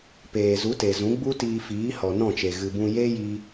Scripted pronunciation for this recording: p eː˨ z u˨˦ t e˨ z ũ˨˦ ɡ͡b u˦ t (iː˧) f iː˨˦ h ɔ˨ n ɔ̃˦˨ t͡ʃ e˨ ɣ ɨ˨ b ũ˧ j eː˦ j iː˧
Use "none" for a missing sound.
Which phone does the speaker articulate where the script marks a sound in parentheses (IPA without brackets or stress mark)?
iː˧